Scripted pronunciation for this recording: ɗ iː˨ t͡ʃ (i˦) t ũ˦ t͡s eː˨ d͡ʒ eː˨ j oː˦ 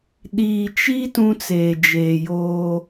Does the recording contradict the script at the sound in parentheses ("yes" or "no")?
no